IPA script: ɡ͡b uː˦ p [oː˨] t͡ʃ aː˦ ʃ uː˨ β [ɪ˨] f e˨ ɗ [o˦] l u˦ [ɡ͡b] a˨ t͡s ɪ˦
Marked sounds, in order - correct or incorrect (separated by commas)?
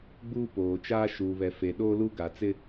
correct, incorrect, incorrect, incorrect